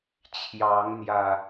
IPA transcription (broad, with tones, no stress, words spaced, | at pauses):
t͡ɕʰjɑ˨˦ŋn̪jä˨˩